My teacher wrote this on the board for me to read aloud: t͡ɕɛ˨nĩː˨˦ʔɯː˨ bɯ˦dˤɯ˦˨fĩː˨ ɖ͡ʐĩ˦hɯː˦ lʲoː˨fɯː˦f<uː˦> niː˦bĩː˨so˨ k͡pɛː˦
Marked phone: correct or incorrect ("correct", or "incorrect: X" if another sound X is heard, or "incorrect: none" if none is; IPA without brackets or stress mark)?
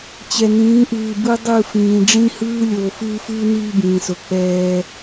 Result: incorrect: ɯː˦